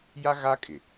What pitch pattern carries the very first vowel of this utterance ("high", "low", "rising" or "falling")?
high